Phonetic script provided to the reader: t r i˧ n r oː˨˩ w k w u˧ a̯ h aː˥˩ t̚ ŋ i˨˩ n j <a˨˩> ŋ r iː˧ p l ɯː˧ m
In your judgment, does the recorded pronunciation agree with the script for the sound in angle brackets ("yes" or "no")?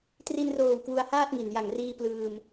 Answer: yes